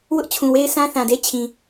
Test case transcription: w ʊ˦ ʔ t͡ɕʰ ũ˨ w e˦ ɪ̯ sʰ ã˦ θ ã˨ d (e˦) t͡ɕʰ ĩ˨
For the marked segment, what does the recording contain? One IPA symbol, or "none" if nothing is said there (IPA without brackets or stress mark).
e˦